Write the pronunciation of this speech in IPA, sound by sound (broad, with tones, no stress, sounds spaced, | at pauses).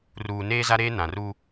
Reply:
r uː˨ n eː˦ z a˦ ɾ eː˦ n ã˨ r u˦